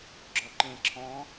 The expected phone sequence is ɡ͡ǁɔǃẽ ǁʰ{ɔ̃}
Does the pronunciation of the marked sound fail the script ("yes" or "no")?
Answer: no